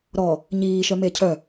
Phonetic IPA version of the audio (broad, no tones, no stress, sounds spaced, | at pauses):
ɾ ɔ | ɲ iː ʃ œ m e cʰ œ